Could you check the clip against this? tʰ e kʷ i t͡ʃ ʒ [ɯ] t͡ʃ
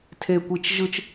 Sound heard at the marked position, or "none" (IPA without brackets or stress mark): ɯ